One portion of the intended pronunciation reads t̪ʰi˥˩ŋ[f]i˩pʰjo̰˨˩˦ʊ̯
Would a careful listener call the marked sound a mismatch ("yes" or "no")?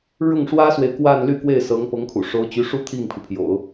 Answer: yes